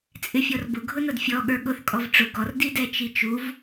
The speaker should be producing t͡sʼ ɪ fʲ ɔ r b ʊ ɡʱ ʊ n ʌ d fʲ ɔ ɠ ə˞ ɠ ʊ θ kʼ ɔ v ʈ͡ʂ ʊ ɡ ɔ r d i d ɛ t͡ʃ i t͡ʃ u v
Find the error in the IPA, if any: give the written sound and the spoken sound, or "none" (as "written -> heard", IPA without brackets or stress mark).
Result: none